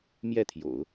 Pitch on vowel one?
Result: falling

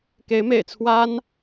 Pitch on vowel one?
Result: rising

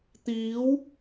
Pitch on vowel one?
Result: rising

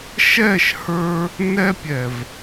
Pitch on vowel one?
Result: falling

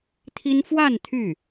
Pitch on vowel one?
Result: high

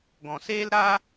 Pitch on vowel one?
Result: low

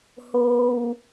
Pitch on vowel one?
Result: low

